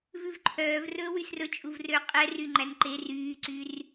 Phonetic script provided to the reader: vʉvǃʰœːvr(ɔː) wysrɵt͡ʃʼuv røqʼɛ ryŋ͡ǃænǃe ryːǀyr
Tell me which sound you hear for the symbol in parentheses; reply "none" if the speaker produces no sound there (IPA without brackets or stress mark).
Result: ɵː